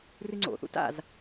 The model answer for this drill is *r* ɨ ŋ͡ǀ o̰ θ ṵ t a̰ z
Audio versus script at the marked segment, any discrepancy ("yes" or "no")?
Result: no